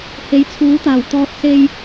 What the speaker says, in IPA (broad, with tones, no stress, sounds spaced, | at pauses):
h e˨˥ j t͡sʰ uː˨˥ t̪ aː˨˩ w t̪ ɔː˧ t̚ s e˧ j